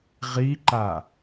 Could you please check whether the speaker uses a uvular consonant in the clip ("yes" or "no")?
yes